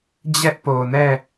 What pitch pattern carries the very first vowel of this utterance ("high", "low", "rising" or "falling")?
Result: high